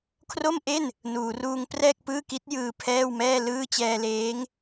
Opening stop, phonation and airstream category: aspirated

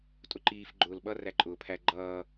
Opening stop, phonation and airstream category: ejective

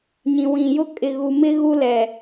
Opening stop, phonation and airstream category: ejective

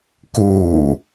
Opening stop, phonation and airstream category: plain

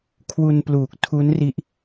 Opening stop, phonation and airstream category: aspirated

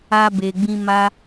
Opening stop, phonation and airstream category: plain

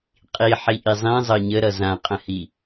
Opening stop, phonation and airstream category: ejective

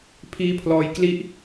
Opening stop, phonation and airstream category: aspirated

